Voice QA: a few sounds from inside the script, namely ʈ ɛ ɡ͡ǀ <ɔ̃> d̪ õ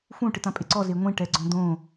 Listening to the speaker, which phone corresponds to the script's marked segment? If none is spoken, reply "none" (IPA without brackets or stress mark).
ɔ̃